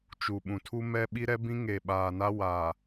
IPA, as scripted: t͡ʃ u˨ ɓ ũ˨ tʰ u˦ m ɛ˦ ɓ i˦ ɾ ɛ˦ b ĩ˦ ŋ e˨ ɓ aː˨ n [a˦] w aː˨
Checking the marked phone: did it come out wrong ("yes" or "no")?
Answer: no